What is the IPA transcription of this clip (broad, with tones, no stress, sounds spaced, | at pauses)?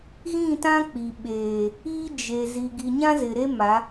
ɣ ĩ˦˨ t ã˦ k͡p i˨ ɓ eː˨ | i˦ d͡ʒ e˨ z i˨ ɡ i˨ ɲ ã˦ z ɪ˨ ɾ e˦ m a˨˦